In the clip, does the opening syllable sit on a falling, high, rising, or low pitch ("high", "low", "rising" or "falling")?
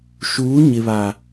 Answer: rising